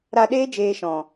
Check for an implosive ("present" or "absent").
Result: present